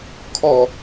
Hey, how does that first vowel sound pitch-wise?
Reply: low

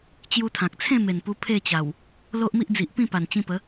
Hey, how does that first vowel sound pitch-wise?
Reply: high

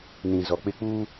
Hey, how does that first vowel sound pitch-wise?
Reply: low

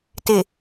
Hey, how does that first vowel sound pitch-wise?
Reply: low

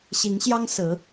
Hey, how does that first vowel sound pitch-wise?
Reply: rising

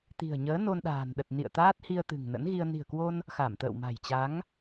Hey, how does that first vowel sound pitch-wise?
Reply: low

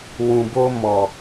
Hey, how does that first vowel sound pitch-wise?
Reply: low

